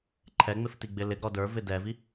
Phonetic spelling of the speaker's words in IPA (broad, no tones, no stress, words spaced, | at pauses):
ǃʰɛŋ͡mɪftiɡ͡bɪ lɪɡɾɔ də˞vɪ dɛvi